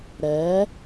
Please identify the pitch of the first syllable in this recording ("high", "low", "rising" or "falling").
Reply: rising